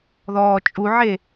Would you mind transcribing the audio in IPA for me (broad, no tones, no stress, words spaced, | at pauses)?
ðɔːt͡ʃʼuʕe